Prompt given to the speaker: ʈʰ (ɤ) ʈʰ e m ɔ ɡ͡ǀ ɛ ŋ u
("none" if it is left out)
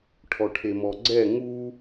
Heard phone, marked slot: ɔ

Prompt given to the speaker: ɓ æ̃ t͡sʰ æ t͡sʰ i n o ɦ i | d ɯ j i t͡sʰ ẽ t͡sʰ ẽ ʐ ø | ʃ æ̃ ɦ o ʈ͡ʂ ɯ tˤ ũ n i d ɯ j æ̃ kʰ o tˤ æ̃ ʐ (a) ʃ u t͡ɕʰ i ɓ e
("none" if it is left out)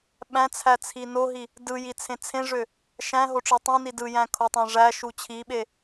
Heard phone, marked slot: æ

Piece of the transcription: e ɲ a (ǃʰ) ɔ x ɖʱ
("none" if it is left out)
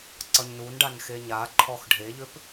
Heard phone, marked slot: ǃʰ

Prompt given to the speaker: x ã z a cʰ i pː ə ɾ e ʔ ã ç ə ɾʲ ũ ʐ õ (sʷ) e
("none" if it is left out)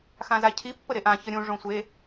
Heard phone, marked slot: sʷ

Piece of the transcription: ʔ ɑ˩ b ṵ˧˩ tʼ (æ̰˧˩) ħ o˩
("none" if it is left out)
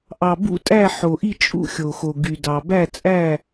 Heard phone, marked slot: æ˧˩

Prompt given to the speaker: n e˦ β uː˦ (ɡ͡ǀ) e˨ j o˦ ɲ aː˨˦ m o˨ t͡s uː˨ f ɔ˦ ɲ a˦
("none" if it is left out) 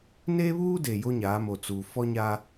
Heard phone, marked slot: d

